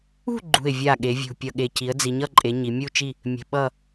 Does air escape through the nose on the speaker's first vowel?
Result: no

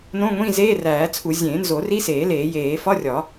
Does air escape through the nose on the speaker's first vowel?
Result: yes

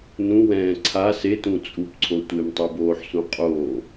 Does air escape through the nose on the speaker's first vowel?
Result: yes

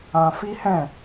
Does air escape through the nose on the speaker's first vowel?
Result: yes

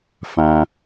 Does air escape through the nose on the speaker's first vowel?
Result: yes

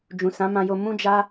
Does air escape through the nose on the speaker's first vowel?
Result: yes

